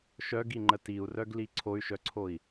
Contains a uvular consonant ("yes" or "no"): no